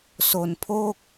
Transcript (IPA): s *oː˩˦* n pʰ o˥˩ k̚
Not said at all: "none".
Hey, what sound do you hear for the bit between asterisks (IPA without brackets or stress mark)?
o˩˦